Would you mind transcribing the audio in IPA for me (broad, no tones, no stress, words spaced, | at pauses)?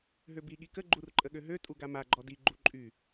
ɦøbi ɠikə ɡ͡ǃurǃʼəɠøɦø tʼuɡama ɡ͡ǃɔdi ɡ͡ǃuǃʼy